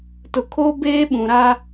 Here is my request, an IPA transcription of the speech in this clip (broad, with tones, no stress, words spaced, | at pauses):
tʊ˨kʰoː˦ beː˦ɓũ˨ ɾa˦